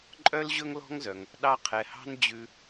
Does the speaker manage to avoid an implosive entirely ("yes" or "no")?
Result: no